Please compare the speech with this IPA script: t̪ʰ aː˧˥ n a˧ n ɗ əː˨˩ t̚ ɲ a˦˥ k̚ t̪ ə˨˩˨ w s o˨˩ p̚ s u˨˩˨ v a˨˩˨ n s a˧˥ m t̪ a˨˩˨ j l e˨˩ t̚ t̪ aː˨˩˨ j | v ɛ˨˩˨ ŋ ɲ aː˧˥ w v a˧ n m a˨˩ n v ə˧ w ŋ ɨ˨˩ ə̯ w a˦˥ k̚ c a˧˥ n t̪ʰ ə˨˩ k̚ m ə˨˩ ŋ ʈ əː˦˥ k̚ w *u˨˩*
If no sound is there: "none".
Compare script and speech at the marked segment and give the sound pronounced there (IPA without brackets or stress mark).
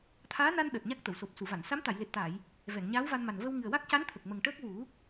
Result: u˨˩˦